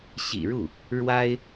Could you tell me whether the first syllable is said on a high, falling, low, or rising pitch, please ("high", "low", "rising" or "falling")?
low